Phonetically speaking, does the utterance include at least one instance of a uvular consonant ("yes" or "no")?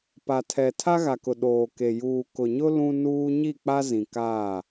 no